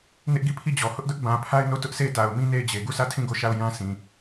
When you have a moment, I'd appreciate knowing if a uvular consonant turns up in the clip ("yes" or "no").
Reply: no